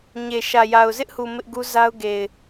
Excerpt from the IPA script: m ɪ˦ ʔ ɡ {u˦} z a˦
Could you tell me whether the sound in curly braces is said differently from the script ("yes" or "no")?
no